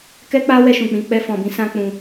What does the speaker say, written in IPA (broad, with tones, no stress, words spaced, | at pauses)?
kɛ˦k͡pa˦wɛ˧ ʃũ˨k͡pĩ˧ k͡pɛ˧fɔ̃˨bĩ˨˦ sã˦k͡pũ˧